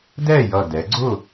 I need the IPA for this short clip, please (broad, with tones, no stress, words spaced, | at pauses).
dɛ˥˨jʌ˧˩dɛ˩˧ɡ͡ǀʊ˥˨